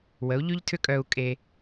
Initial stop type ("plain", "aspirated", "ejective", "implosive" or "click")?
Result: aspirated